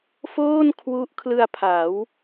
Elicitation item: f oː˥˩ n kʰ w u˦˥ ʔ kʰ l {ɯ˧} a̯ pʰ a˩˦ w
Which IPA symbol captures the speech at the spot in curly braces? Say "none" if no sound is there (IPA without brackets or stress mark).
ɯ˧